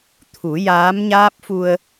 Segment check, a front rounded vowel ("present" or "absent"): absent